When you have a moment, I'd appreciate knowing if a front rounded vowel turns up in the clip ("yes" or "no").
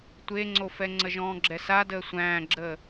no